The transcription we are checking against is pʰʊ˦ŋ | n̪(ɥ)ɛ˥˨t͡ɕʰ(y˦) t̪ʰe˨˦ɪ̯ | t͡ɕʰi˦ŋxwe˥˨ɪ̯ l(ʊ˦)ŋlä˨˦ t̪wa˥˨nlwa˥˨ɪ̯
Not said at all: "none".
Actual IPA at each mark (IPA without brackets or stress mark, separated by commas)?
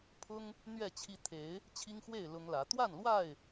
ɥ, i˦, ʊ˦